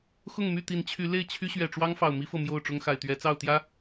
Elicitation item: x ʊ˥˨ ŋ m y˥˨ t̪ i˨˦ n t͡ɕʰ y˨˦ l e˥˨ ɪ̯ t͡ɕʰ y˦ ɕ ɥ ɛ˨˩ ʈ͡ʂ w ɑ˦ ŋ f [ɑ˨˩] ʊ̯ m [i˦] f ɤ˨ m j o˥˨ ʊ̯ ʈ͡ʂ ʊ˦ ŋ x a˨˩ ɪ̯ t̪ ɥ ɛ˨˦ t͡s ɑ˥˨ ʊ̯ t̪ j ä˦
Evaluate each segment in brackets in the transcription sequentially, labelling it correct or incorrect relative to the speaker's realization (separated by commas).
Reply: correct, correct